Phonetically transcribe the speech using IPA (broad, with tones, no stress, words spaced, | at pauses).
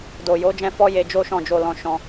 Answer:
do˨jo˨˦d͡ʒɛ̃˧ fɔ˦ je˧d͡ʒo˦ʃɔ̃˦˨d͡ʒo˧ lɔ̃˧ ʃɔ̃˧